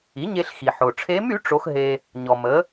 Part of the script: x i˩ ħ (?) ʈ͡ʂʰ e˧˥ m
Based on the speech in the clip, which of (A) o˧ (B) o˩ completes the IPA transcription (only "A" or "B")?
B